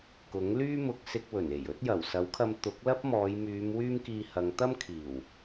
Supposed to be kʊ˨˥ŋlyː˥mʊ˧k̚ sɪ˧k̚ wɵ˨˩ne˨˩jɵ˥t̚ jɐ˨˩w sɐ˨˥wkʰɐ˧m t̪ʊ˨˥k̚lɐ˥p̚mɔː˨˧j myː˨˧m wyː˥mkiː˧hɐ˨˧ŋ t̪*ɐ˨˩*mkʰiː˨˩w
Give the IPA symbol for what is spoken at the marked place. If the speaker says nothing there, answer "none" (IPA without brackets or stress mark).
ɐ˥